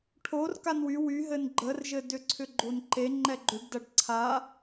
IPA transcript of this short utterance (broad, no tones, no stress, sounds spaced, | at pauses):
ʈʰ o r k a n w y w y ɦ ɘ n ɡ͡ǃ ə r ʒ ɘ d ʏ ǀʰ ʏ ɡ͡ǃ o n ǃ e ŋ͡ǃ ɛ ɡ͡ǃ ʏ ɖ d ɐ ɖ ǀʰ a